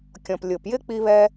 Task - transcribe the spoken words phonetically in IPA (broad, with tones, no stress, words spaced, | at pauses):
kʲɔ̃˩p lʲʊ˩pjɪ˥ k͡pi˥βɛ˥